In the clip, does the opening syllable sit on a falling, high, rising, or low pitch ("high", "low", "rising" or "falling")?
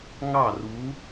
falling